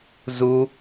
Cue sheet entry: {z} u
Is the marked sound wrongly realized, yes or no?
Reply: no